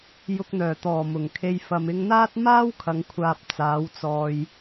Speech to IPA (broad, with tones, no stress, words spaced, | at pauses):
jʊ˨k̚n̪œː˨˩t̪ɔː˨˩ mʊ˨˩ŋkʰe˨j fɐ˨mɪ˧ŋn̪aː˥t̚ maː˥wkʰɐ˨ŋkʷʰaː˨p̚ t͡saː˨˧wt͡sɔː˨j